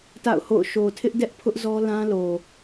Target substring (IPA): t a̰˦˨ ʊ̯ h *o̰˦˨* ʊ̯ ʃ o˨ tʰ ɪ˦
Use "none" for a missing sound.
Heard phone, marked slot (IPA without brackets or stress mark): o̰˦˨